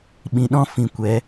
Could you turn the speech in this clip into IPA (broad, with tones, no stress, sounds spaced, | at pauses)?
ɓ ĩ˨ ɗ ɔ̃˦ f ĩ˧ kʷ ɛ˨˦